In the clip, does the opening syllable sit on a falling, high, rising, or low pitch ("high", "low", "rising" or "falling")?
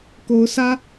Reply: rising